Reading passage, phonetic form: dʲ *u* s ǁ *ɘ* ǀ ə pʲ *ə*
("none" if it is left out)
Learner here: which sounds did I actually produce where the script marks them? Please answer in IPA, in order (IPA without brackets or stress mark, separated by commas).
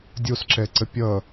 o, ɛ, ʌ